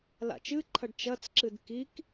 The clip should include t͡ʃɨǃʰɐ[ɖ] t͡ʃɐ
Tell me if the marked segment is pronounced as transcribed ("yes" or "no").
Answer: yes